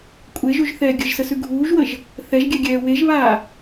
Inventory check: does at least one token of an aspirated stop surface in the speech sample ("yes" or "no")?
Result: no